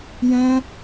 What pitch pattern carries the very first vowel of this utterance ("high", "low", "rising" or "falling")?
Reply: high